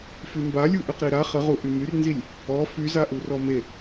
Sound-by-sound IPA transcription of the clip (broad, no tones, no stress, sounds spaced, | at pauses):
f y m b a lʲ u ʔ y q ɾ i ɾ a χ ə ʁ u ʔ y m y r n z i lʲ | ɔ f y z a ʔ u r ɔ m e